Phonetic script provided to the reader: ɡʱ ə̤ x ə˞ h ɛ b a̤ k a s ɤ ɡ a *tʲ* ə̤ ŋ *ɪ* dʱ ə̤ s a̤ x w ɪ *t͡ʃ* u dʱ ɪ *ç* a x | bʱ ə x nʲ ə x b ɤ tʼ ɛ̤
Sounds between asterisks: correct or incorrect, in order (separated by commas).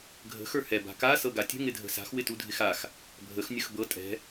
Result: correct, correct, incorrect, incorrect